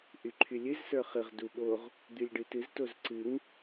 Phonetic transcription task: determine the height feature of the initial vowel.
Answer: high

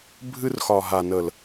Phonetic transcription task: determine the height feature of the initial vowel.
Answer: high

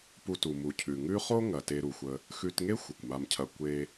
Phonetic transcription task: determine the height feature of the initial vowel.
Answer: high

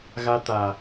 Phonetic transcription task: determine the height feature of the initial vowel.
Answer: low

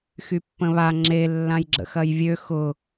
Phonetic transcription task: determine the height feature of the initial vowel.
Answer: high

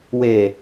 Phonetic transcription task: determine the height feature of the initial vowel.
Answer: mid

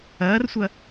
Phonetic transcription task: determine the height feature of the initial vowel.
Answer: low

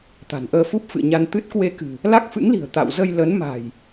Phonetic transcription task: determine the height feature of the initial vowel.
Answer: low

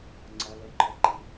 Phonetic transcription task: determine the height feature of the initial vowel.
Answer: low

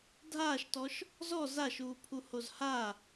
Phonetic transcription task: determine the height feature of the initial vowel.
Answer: low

